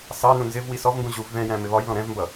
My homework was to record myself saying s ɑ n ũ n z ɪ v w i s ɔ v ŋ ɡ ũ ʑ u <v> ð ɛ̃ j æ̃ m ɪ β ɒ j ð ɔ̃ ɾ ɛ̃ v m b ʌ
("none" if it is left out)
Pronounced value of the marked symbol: v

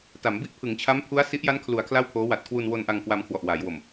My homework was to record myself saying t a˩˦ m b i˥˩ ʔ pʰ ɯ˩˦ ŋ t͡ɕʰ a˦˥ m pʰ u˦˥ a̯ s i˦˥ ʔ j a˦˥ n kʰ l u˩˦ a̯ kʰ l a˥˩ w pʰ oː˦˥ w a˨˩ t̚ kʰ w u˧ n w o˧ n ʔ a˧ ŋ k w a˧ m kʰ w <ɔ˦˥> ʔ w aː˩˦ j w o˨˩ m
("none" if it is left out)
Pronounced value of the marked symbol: ɔ˨˩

